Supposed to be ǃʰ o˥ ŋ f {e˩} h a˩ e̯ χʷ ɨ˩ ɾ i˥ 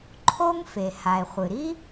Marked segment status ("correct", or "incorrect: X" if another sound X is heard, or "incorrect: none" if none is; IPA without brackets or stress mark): correct